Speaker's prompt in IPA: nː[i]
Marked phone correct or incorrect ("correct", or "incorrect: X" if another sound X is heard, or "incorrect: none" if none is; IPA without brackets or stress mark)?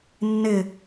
incorrect: ɪ